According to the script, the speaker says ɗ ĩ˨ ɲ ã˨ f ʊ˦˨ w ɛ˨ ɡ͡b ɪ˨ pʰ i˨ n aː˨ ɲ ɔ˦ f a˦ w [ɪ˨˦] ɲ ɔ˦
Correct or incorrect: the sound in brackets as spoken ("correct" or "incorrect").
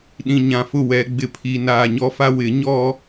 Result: correct